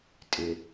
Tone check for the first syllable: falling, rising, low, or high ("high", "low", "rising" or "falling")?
low